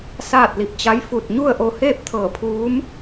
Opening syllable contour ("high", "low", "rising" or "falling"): falling